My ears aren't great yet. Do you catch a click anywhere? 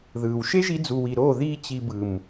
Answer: no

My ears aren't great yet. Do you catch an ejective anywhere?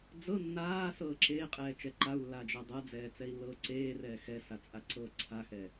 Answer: yes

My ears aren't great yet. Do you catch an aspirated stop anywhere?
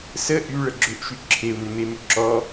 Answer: yes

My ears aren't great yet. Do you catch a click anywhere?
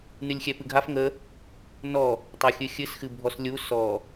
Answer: no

